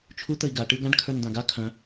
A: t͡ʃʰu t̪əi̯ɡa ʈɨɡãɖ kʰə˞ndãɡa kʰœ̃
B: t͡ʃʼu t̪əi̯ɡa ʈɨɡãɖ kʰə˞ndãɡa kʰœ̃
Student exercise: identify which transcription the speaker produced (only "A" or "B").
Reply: A